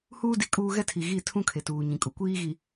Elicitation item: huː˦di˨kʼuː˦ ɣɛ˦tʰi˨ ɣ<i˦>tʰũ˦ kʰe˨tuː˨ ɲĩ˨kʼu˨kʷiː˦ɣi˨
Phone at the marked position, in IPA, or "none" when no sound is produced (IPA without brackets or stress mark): i˦˨